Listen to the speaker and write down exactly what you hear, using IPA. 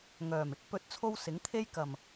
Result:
ŋ œː˨˩ m ɪ˥ k̚ p ɵ˨˥ t̚ t͡sʰ o˧ w s ɪ˨˥ ŋ t̪ʰ e˥ j k ɐ˨˩ m

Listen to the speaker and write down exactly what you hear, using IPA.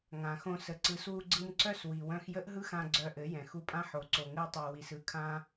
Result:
ŋ ã˨ x õ˧ s ə˨ ǀ ɯ˨˦ s w u˧ ɡ͡ǀ ɯ˧ m ǀ œ˦ s w i˨ w œ̃˧ x j ə˦ ʔ ɦ ɯ˦ x ã˧ ɡ͡ǀ œ˧ ʔ ɘ˨˦ j ɛ̃˨ x u˧ pʼ ã˦ ħ o˨˦ ǀ o˨ ŋ ɘ˧ e̯ tˤ œ˨ w i˨ s ɯ˦ kʰ ã˦

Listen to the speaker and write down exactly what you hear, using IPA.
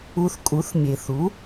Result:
u˧ θ kʼ u˩˥ θ mʲ e˩ θ u˩˥

